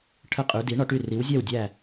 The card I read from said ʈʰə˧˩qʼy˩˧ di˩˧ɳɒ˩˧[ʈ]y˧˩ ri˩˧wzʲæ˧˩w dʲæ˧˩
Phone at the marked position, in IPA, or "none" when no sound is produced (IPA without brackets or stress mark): ʈ